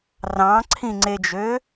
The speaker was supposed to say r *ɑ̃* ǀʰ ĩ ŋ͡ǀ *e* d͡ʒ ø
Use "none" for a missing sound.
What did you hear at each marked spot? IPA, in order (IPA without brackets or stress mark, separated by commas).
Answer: ɑ̃, e